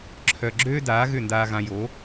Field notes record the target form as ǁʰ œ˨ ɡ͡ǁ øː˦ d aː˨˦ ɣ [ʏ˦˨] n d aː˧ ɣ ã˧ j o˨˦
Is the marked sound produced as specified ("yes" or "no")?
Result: yes